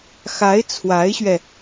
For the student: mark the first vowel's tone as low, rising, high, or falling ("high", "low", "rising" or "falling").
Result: rising